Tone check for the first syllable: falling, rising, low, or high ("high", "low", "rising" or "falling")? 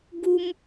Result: high